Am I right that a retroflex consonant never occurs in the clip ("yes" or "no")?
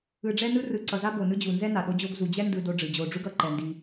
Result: no